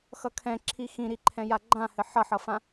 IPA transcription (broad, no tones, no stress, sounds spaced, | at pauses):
x ʌ kʰ ɛ̃ ǁʰ i x ĩ ɾ i ǃʰ ɛ̃ j a ɡ͡ǃ ã h ɘ ħ ʌ ħ ʌ f ã